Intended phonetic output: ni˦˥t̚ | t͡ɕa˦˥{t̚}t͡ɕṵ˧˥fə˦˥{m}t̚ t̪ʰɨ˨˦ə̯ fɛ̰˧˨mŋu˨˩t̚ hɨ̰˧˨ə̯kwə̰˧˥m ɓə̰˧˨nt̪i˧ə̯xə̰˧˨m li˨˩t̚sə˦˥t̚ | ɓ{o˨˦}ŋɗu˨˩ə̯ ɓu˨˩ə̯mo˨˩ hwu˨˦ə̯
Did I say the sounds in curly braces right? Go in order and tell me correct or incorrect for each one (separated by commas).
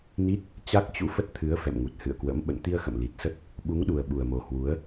incorrect, incorrect, incorrect